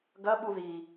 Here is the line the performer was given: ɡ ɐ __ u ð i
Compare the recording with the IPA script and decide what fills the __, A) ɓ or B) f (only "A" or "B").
A